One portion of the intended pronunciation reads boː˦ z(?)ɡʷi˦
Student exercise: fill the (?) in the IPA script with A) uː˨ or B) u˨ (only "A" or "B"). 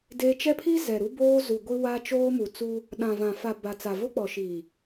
B